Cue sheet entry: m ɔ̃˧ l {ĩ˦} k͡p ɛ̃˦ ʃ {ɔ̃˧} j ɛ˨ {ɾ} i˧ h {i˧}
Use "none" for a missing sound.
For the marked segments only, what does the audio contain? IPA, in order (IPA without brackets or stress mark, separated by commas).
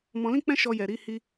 ĩ˦, ɔ˧, ɾ, i˧